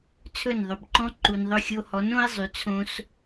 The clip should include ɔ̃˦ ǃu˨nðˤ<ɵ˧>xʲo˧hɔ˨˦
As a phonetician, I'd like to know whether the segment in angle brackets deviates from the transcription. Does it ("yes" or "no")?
no